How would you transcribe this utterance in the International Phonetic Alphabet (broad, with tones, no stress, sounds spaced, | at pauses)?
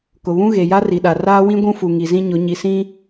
k ʊ˨ β ũ˦ ɣ e˨ j a˦ r i˨ ɗ a˨ r aː˦ w ĩ˦ ɡʷ ũ˦ f u˨ ŋ i˨ z ĩ˦ ɲ ʊ˨˦ ɲ i˨ s ĩ˦